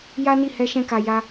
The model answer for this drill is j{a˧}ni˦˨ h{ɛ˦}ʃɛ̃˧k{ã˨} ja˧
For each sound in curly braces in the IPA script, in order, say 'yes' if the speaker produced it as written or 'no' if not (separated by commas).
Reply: no, no, no